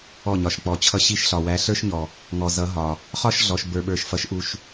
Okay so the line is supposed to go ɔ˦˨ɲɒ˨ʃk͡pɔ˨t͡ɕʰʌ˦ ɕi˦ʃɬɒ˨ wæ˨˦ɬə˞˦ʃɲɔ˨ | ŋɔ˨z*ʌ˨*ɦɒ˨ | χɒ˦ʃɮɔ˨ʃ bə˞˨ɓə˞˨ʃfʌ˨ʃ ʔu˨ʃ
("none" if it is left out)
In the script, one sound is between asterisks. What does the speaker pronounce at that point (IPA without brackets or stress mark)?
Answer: ʌ˨˦